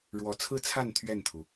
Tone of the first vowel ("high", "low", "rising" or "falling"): low